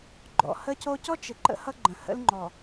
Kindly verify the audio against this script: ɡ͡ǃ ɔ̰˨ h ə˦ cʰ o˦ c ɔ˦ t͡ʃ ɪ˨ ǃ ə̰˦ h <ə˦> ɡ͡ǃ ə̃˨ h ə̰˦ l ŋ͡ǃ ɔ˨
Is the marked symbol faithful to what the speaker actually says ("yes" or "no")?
no